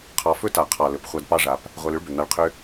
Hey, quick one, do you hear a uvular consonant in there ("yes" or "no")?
yes